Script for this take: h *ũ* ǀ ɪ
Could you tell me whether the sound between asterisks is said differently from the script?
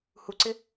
yes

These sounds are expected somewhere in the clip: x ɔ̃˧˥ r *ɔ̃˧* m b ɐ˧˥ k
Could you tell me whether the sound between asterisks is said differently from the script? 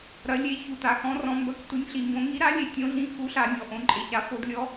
no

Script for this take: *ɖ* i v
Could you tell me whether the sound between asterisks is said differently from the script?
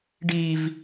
no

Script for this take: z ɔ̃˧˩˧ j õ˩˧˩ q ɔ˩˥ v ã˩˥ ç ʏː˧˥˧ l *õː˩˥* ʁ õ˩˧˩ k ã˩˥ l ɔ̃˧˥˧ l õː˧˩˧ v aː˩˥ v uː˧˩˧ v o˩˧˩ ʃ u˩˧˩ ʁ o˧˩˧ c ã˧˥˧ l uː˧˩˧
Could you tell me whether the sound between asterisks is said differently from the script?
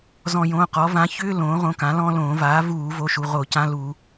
no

